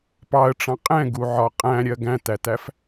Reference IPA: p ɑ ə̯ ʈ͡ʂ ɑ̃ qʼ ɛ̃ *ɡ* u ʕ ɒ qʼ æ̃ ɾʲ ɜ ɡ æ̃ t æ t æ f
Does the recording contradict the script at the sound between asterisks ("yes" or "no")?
no